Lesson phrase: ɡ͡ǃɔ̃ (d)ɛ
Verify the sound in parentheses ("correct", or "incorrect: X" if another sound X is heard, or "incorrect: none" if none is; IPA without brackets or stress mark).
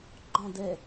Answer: correct